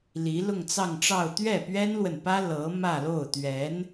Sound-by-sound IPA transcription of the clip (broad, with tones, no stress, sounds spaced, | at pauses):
l i˧˥ l ʊ˥˧ ŋ t͡s ɑ˥˧ ŋ ʈ͡ʂ ɑ˥˧ ʊ̯ t̪ ɥ ɛ˥˩ p ɥ ɛ˥ n l w ə˨ n p ä˥ l ɤ˧˥ m ä˥˧ l o˥˩ ʊ̯ t̪ ɥ ɛ˧˥ n